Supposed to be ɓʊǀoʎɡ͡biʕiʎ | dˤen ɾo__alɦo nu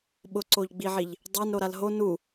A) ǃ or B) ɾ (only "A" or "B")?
B